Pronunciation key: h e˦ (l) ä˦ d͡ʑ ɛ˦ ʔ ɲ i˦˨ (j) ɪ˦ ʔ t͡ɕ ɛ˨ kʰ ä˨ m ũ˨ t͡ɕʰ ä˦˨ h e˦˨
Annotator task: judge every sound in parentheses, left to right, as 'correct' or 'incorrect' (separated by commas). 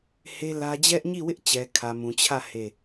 correct, incorrect